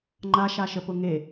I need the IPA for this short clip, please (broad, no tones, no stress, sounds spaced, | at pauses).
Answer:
ŋ͡ǃ a ʃ a ʃ ə p ʊ ŋ e